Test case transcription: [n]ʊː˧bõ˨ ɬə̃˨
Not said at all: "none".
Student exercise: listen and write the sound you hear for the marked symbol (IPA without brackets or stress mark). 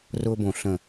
r